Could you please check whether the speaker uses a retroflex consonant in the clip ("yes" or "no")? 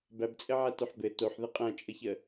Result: no